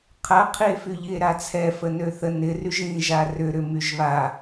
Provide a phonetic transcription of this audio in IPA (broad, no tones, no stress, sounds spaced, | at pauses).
qʰ ɐ qʰ i e̯ f y ʎ i e̯ ɾ a t͡sʰ ɛ f ə n ø θ ə n ɪ r y ʒ ĩ ʒ a r ʏ ɾ ʏ m y ʒ β a